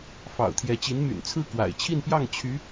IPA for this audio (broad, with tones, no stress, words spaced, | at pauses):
fɑ̰˨˩ʊ̯t̪ʰjɛ˧˥t͡ɕi˧˥n my̰˨˩nt͡sʰɹ̩˥˩ kwa̰˨˩ɪ̯t͡ɕʰi˥˧npjɑ˥˩ŋ t͡ɕʰy˧˥